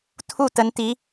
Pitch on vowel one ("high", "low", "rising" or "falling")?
falling